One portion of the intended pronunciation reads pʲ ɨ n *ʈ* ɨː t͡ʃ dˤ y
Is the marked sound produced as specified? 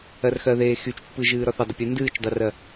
no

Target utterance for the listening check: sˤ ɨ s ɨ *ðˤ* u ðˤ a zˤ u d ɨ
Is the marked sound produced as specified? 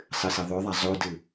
yes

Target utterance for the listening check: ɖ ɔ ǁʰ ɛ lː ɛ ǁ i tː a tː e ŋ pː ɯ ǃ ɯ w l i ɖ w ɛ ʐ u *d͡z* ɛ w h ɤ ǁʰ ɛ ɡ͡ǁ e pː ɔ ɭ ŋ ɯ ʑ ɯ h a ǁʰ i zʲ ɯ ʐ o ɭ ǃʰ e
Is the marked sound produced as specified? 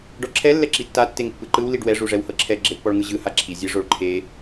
no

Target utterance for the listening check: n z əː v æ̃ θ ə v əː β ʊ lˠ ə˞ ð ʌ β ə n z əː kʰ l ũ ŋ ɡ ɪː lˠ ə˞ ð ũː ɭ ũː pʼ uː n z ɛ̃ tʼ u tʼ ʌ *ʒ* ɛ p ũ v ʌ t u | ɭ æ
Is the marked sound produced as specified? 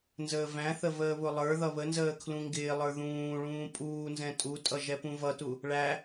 yes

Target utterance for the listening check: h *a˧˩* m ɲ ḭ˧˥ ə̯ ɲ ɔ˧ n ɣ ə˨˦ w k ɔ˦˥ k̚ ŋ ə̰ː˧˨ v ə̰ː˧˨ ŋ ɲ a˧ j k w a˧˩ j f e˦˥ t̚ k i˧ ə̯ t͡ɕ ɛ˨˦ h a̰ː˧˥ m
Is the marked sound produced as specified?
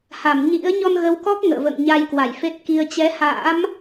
yes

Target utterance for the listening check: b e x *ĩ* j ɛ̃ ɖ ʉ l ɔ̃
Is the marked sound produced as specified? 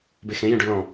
no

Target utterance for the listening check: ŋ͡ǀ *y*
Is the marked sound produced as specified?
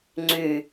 yes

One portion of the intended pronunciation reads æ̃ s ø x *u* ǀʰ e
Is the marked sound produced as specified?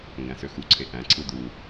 yes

